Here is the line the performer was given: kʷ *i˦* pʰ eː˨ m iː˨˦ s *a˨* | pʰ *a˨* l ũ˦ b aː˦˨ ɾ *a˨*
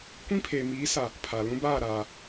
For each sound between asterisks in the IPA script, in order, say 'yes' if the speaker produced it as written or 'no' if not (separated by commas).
no, yes, yes, no